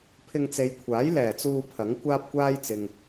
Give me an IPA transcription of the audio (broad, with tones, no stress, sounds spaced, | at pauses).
pʰ ɪ˧ ŋ t͡s e˨˧ j kʷʰ aː˨˥ j l ɛː˨˩ t͡s uː˧ pʰ ɐ˨˥ ŋ kʷ aː˥ p̚ kʷ aː˥ j t͡s ɪ˨ ŋ